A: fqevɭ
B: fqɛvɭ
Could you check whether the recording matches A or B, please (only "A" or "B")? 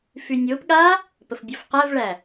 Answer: B